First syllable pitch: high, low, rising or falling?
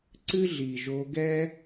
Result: high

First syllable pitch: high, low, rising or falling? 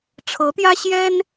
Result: rising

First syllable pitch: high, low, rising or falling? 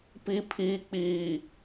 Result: low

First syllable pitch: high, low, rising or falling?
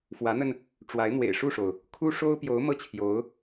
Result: rising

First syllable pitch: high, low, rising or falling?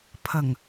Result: low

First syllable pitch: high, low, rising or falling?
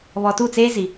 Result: low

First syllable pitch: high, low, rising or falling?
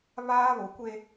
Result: high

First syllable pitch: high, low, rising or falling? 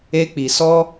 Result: high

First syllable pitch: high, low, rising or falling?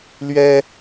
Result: high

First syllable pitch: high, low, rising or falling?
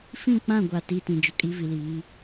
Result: falling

